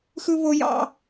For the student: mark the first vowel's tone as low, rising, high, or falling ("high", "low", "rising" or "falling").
high